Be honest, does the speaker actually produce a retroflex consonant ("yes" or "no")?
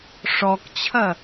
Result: yes